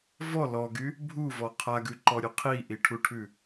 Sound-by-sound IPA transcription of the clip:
v ɔ l ɔ ɡ y | bʱ u v ɔ qʰ a ɡ ʉ ǃ ɔ ɾʲ ʉ qʰ i ʔ i ʈʰ u ʈʰ ʉ

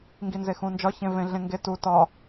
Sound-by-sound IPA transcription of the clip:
ŋ ɡ i n z e x ũ n d͡ʒ ɒ ç ẽ v ẽ ɮ ẽ ŋ ɡ e t u t ɒ

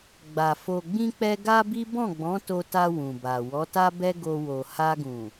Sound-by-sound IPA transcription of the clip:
ɡ͡b a˨ f o˨ ɡ͡b ĩ˧ k͡p ɛ˧ ɡ a˦ b i˦ b ɔ̃˦˨ ɡ͡b ɔ̃˨˦ t o˧ t a˧ w ũ˨ b a˨ w ɔ˨˦ t a˦ b ɛ˦ ɡ o˧ w o˨ h a˧ ɡ ũ˨

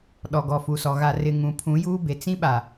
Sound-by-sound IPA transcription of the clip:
ɗ ɔ˨ ɡ ɔ˨ f u˨ s ɔ˨ ɣ a˨ r ɪ˨ ŋ ũ˨ pʰ ũ˨˦ j uː˦ b e˨ t͡s ĩ˦ ɓ a˨

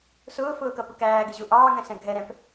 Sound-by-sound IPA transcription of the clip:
s ʊː f ʊː k ʌ p ʊ k æː ɡ ɪ ʑ u ʔ ɑː ŋ ɛ̃ s ɛ̃ ɡʱ ɛ ɾ ɛ̃ p

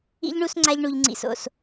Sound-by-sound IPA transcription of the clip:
ḭ˦ ʎ ɳ u˦ s ŋ͡ǀ a˧ ʎ ɳ u˨ ʎ ŋ͡ǀ ḭ˨ s o̰˨ s

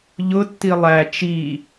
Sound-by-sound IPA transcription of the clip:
ʎ ʊ tː i lˠ æ t͡ʃ i

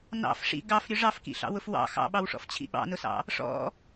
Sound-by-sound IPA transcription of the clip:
n ɑ̰ f ʂ ḭ ɡ ɑ f ɾʲ ʊ ʐ ɑ f k ḭ ɬ ɑ̰ w ʊ f w ɑ̰ x ɑ̰ ɓ ɑ w ʂ ɔ̰ f t͡ɕʰ ḭ ɓ ɑ̰ n ʊ s ɑ̰ | ʂ ɔ̰

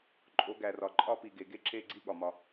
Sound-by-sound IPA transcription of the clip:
ǃʼ o˨˦ ɡ æ˨ r ɒ˨ ǃʼ ɒ˦ p i˨ ɡ e˨ ɡ e˦ ǁ e˦˨ ɡ͡ǀ i˦ ɠ ɒ˨ m ɒ˦

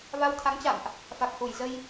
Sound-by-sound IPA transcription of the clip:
v a˧ w t̪ʰ a˨˦ ŋ t͡ɕ a̰˧˨ m ʔ | f a˨˩ k̚ h u˧˩ j z ə˧ j

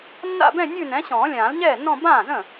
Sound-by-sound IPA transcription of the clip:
nː a̰˥˧ b ɛ̃˥˧ nʲ ʉ˥˧ n ɛ̃˨˥ ɕ ɔ̃ː˨˩˦ lʲ ãː˨˩˦ l ɲ ɛː˥˩ nː ɔ̃˥˧ b ãː˥˩ z ə̃˥˩

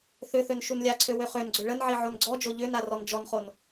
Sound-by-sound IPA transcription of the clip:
θ ʏ θ ø n ʃ u n lʲ a ǀʰ ø w ø χ ø n ɡ͡ǀ ʏ ɭ ə n ʕ i ʕ o n ɡ͡ǀ ɔ d͡ʒ o ʎ ʏ n a r ɔ n d͡ʒ ɔ n χ o n

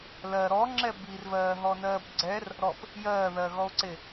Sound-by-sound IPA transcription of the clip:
l ɜ ɾ ɔ ŋ͡ǁ ɛ b i r v ɜː ɦ ɔ n ɜː b ɡ͡ǀ ɛ r | ɾ ɔ p | j ɜː ð ɜ ɣ ɔ o̯ ǀ e

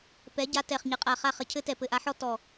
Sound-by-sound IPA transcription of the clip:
p ɛ˨˥ ɟ a˧ t ɛ˧˩ χ ɲ ɘ˨˥ qʼ a˧˩ χ a˥˩ χ ɘ˧ cʰ ɘ˥ t ɛ˧˩ p ɘ˧ ʔ a˨˥ ħ ɔ˥ t ɔ˧˩

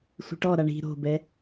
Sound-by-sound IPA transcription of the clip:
sʷ i̤ ʈ ɔ ɾ a ɳ i̤ ɾ o̤ b ɛ

